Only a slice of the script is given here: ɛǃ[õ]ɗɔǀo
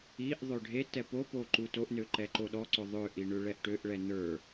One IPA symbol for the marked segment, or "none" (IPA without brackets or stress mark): o